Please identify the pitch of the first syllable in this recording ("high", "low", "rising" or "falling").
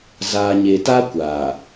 low